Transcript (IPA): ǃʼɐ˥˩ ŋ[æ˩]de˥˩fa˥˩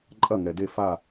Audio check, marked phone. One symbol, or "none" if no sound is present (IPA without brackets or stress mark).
ɛ˩